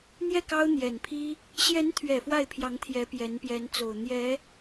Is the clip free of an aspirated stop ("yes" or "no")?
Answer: no